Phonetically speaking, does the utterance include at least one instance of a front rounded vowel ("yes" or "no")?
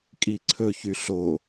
yes